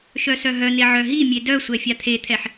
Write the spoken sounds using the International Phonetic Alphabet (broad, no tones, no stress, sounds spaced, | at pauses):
ʃ œ s œ ɦ œ n̪ e ʕ œ ɦ i mʲ e d œ sʷ ɛ fʲ a t̪ʰ e t̪ʰ ɛ ħ